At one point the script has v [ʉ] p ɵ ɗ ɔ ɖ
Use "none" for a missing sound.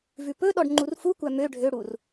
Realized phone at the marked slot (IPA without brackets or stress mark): ʉ